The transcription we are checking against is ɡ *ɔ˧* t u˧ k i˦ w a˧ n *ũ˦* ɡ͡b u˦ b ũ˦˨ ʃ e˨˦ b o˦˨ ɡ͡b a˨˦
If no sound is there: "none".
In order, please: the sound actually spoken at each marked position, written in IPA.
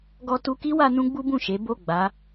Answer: ɔ˧, ũ˦

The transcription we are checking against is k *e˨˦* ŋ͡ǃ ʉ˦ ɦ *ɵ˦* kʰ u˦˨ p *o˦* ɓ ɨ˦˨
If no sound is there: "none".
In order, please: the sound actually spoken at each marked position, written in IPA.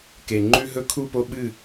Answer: e˨, ɵ˦, o˦

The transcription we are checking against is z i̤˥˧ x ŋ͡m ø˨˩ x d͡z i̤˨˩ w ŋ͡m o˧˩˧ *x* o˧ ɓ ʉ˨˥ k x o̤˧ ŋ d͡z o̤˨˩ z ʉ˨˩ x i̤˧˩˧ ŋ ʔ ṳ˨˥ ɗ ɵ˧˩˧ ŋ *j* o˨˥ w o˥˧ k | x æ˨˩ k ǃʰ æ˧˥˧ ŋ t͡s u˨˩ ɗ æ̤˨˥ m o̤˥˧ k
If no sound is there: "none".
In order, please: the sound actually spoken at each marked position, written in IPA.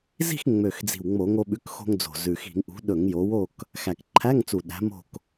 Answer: ŋ, j

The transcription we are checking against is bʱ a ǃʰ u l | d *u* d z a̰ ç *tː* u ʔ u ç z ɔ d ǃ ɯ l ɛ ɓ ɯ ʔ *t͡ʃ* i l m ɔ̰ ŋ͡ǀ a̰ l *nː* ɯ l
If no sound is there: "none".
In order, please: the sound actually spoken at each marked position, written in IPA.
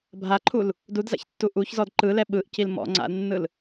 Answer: u, tː, c, nː

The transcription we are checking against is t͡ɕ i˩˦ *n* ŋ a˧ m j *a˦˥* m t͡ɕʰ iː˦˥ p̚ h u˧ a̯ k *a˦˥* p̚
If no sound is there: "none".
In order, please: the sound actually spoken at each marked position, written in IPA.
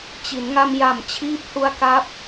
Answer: n, a˨˩, a˦˥

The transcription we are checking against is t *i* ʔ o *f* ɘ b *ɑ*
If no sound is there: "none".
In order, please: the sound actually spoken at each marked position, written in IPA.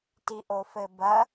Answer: i, f, ɐ

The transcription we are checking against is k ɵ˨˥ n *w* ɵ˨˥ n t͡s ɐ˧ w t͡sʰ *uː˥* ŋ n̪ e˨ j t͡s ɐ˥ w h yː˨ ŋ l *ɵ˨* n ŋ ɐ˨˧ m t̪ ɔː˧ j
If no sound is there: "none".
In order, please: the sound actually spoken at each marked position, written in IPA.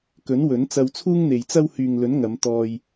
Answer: w, uː˥, ɵ˨˥

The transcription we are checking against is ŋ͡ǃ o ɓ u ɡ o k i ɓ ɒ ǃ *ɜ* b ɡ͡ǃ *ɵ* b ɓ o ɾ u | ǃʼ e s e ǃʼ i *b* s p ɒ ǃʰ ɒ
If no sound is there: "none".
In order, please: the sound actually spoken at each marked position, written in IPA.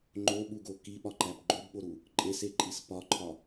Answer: æ, o, none

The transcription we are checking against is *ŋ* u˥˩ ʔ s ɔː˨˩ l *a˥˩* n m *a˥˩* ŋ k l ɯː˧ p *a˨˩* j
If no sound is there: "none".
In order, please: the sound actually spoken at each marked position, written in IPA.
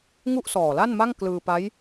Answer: ŋ, a˥˩, a˥˩, a˦˥

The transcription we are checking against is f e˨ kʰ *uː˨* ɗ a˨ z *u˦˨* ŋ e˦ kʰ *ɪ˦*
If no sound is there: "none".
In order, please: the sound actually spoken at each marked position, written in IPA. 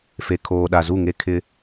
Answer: oː˨, u˦˨, ɪ˦

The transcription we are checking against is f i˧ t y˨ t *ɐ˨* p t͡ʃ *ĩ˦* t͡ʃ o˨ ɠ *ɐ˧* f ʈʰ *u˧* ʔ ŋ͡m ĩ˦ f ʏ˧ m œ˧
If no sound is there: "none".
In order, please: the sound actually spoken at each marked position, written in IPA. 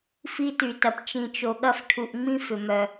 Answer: ɐ˨, ĩ˨, ɐ˧, u˧

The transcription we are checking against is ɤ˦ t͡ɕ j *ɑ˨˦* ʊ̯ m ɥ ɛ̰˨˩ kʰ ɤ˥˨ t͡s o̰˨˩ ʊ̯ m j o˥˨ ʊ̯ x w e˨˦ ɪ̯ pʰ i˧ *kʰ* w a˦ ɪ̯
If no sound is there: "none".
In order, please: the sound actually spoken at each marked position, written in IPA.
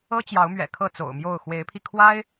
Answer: ɑ˨˦, kʰ

